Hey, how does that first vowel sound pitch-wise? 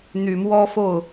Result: low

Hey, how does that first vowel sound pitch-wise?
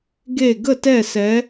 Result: falling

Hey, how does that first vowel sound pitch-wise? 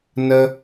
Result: high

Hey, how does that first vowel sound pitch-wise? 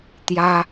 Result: high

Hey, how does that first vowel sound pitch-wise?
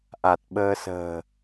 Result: low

